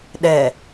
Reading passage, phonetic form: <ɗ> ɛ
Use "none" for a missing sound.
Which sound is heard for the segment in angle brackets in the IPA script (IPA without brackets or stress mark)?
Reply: ɗ